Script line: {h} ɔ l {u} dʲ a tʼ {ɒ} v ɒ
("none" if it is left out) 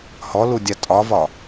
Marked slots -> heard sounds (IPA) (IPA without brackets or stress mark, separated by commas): h, u, ɒ